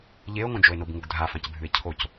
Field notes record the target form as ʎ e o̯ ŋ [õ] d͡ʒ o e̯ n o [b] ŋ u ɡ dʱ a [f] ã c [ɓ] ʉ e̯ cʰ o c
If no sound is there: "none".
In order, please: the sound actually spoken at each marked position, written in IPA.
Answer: õ, b, f, bʱ

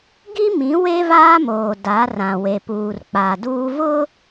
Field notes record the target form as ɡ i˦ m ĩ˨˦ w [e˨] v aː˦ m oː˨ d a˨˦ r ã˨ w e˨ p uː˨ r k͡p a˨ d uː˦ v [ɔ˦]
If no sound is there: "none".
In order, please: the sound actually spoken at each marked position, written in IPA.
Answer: e˦, ʊ˦

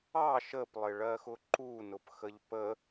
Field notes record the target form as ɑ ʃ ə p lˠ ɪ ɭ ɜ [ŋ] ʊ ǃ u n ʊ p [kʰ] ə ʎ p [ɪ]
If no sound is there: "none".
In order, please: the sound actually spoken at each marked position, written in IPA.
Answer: x, x, ə

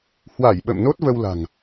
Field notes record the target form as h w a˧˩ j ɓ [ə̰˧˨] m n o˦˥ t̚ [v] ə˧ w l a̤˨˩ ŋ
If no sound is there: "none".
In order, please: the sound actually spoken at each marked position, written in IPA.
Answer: ə̰˧˨, v

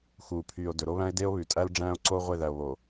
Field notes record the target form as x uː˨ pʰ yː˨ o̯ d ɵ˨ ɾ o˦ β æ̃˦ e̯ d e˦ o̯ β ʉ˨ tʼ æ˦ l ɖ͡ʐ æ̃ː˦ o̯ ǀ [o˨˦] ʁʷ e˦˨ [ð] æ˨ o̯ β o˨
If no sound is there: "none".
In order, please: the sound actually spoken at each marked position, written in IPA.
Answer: o˦, ð

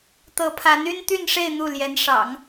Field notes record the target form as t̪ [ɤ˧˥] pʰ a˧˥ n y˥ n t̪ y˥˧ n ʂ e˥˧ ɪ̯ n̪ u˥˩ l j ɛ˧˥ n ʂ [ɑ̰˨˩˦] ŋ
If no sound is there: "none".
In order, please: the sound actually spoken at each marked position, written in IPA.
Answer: ɤ˧˥, ɑ̰˨˩˦

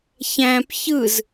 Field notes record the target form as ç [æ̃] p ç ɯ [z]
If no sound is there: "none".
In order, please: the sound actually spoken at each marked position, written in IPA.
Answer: æ̃, z

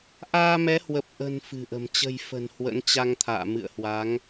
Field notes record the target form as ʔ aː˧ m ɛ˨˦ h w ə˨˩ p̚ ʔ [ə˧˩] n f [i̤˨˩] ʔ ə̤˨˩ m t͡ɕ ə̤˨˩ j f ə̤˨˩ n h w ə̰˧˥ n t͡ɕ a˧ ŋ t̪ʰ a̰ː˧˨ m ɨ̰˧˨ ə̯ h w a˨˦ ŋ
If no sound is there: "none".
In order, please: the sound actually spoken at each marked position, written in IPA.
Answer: ə̤˨˩, ɨ̤˨˩

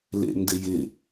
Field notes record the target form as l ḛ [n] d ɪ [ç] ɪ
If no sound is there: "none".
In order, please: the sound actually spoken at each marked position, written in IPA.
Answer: n, j

